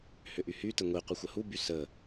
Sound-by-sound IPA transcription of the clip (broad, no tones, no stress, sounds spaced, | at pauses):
h ʏ ʔ y h y t ə ŋʷ i qʷ ə xʷ ə h u b y s ə